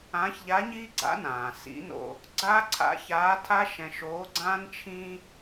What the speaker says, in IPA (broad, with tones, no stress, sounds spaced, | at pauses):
ãː˧˥ ç ʎ a˧˥ ɲ iː˥ ɡ͡ǀ a̰˧˥ n ãː˩ s ḭ˧˥ n o̰˧ | ɡ͡ǀ aː˥ ǀʰ a̰˧˥ ç aː˧˥ tʰ a˥ ʃ ɛ̃˧ ʃ oː˧˥ ɡ͡ǀ ãː˥ n t͡ʃʰ ĩ˥